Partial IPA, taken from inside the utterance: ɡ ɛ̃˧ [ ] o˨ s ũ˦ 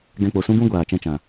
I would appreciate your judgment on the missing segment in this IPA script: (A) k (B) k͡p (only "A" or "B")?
B